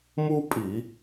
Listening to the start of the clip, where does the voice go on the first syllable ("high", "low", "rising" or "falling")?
high